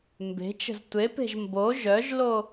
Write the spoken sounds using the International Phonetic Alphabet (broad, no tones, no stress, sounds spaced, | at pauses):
m b e̤ t͡ʃ ə̤ z tʷ e p e̤ ʒ m b o ʒ œ ʒ l o